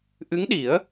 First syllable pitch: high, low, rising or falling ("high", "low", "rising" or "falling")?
rising